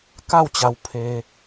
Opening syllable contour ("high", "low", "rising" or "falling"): falling